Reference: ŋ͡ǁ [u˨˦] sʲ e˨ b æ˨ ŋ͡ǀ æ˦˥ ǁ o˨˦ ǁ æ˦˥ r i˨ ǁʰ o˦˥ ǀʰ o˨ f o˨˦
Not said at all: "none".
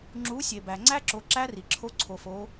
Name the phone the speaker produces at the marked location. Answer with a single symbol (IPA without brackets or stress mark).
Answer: u˨˦